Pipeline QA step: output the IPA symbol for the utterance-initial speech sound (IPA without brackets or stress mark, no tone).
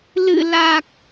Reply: l